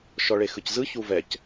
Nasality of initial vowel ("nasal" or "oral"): oral